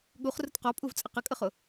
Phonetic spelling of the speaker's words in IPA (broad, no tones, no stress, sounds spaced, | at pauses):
ɠ u χ r ʊ t q ɔ pʼ u v t͡sʼ ə q ə kʼ ə χ ʊ